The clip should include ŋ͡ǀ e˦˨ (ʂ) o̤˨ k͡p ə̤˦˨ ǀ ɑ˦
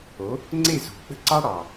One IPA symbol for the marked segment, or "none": z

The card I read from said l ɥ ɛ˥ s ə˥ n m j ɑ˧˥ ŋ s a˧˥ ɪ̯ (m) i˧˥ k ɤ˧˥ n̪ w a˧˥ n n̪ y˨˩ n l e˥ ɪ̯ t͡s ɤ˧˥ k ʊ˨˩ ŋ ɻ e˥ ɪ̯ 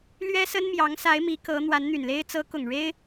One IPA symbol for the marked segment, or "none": m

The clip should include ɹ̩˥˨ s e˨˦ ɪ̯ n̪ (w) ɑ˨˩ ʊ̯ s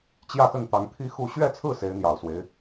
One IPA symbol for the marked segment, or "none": j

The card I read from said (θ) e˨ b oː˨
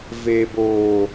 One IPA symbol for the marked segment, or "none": v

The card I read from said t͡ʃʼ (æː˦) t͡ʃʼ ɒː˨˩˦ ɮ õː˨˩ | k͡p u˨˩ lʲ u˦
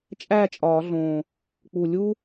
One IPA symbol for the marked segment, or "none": æː˥˨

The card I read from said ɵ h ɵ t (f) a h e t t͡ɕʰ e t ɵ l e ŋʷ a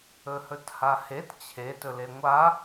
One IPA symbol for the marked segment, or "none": h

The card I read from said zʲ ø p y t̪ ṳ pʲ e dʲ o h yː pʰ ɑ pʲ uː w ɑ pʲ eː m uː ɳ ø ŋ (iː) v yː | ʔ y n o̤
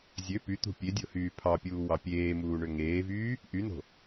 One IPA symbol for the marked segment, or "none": eː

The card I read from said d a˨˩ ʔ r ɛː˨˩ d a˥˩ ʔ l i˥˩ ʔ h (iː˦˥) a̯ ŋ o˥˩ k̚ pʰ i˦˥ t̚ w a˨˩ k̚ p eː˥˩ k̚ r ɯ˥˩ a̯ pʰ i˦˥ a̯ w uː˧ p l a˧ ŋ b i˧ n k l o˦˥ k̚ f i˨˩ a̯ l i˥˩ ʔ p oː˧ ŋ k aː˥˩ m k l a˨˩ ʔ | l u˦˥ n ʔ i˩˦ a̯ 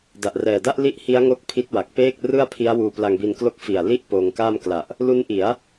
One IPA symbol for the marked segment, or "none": i˦˥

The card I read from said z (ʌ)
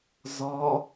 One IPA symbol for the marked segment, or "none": ɒ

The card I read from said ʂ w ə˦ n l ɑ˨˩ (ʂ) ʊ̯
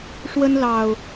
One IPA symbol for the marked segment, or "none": none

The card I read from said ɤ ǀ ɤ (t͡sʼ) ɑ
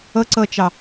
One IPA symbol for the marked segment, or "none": t͡ʃ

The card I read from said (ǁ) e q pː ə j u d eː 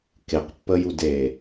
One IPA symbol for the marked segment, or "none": k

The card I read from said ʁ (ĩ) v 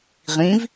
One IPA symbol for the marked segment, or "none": ĩ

